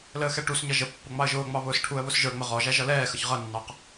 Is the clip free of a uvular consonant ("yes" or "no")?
no